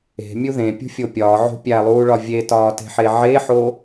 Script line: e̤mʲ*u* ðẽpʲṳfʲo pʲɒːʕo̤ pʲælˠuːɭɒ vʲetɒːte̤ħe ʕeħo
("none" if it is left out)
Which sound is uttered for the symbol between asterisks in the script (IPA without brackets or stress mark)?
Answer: u